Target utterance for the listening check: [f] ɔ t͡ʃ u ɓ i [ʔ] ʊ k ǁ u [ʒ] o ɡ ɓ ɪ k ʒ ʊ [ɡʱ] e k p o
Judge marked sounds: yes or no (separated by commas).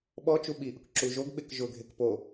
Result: no, yes, yes, yes